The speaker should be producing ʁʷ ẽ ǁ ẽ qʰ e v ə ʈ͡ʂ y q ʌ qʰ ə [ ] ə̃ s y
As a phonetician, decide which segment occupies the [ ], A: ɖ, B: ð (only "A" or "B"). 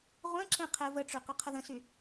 B